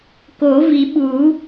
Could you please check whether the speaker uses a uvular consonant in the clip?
no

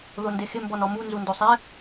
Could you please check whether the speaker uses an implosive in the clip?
no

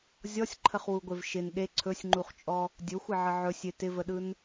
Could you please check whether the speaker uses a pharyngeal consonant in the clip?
yes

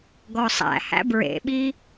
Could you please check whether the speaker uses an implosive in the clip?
yes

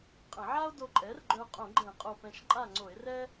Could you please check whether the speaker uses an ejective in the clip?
yes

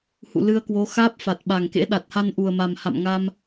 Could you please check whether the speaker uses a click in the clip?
no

